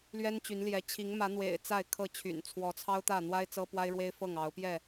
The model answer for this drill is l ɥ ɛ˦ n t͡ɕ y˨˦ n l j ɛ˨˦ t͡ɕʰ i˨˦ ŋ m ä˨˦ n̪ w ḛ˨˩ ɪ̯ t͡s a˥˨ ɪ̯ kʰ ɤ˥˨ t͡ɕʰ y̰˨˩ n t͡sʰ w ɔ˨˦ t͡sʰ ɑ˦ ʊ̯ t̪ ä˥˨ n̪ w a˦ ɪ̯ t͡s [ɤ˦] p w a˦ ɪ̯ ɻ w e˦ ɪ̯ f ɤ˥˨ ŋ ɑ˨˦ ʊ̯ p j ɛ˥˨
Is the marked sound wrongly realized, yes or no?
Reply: no